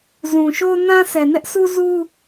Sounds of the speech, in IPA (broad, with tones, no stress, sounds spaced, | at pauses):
z ũ˨ ʃ o˦ n ã˦ s ɛ˨ n ɛ˦ ʔ s u˦ z u˦